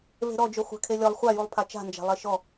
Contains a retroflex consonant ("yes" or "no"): no